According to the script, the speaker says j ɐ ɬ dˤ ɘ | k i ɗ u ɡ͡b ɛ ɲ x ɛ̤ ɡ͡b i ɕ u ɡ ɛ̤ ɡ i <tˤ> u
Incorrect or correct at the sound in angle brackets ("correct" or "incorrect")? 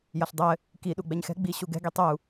correct